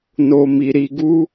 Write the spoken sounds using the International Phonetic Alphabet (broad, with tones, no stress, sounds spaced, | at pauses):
n o˧ m i˧ ɾ i˧ ɡ u˦